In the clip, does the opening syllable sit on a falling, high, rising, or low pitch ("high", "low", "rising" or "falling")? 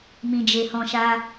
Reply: low